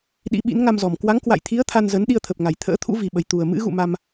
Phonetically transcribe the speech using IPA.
ɗ ḭ˧˥ ɓ ḭ˧˥ n ŋ a˧ m z ɔ˨˩ m k w a˨˦ ŋ k w a̰˧˨ j t̪ʰ i˨˦ ə̯ t̪ʰ a˧ n z ə˨˦ n ɗ i˧ ə̯ t̪ʰ ə˨˩ p̚ ŋ a˨˩ j t̪ʰ ə̰ː˧˥ t̪ʰ ṵ˧˥ v i˨˩ ɓ ə˨˩ j t̪ u˨˩ ə̯ m ɨ̰˧˥ ɣ ṵ˧˨ m a˧ m

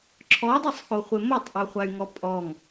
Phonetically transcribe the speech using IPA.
ǁʰ ɔ dˤ ɪ sˤ x o χʷ ɪ m o tˤ ʔ o χʷ a y̯ ŋ ɔ pʼ ɔ ŋ

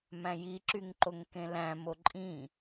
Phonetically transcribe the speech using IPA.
m æ̃ j i ǁ y ŋ ǃ o ŋ k ẽ l æ̃ m o ǃʼ ĩ

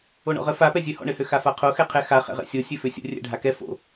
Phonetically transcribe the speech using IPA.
o ɳ ɔ̰ ʁ ə f a p ɛ zʲ ɘ h ɔ̰ ɳ ɘ h ø x a f a qʰ o x ɛ qʰ ɛ x a χ ɛ̰ ʁ ɛ̰ sʲ o sʲ ø f ø sʲ ə̰ rʲ ɛ̰ ɖʱ a k ɛ f o̰

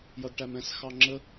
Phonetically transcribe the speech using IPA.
j ʌ d ʈ æ m ɛ̃ s x ɑ ŋ͡ǁ ə

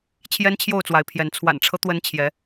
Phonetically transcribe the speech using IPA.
t͡ɕʰ j ɛ˦ n t͡ɕʰ j o˥˨ ʊ̯ t͡s w a˨˦ ɪ̯ pʰ j ɛ˨˦ n t͡sʰ w a̰˨˩ n ʈ͡ʂʰ ɤ˦ t̪ w ə˨˦ n t͡ɕʰ j ɛ˨˦

